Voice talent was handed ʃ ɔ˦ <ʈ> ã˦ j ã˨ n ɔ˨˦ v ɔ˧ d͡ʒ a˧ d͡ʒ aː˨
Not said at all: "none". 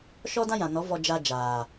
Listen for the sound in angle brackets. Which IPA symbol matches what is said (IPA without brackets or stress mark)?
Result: d